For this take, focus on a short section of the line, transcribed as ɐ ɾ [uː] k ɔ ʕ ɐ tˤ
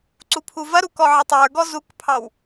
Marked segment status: incorrect: u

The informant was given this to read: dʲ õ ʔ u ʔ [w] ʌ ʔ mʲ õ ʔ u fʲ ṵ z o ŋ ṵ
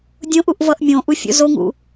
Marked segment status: incorrect: v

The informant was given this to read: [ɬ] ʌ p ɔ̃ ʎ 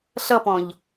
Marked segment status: correct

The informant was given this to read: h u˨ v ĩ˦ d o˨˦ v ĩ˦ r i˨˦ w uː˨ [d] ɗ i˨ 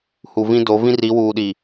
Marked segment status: incorrect: none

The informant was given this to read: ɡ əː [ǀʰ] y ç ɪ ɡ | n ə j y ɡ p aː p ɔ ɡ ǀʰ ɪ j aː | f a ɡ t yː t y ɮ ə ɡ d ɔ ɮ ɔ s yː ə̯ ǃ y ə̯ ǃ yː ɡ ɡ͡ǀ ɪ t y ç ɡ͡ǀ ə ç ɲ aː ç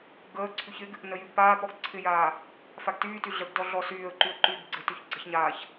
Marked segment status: correct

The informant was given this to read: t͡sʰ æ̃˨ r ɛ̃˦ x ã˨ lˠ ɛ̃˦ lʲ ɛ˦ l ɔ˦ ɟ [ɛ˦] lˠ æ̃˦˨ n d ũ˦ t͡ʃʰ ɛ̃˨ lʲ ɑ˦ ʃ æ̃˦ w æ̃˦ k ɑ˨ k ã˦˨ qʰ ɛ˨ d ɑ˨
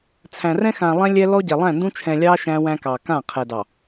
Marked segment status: incorrect: ɛ˨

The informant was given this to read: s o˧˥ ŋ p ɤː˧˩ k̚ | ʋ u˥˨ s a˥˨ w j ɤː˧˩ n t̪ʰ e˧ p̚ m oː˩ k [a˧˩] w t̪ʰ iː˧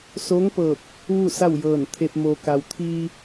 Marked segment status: incorrect: a˩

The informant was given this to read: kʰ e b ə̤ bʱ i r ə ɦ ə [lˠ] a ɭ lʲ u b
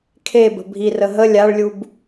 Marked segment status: incorrect: lʲ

